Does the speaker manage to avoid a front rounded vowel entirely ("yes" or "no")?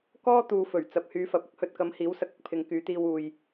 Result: no